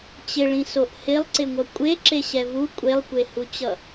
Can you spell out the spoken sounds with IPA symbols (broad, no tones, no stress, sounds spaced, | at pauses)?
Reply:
t͡ɕ ɪ ɭ ĩ s o ʔ h ɪ lˠ ǀ ɪ ŋʷ ʌ kʷʼ e ǁ e ɕ ɛ v u kʷʼ e lˠ kʷ e h u t͡ɕ ʌ